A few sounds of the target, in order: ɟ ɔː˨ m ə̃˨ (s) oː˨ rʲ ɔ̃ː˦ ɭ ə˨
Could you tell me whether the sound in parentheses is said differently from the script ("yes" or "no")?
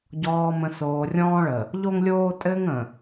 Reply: no